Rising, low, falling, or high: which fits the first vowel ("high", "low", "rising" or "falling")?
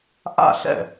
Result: falling